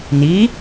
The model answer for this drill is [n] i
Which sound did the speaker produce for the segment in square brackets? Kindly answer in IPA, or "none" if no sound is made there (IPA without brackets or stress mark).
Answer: n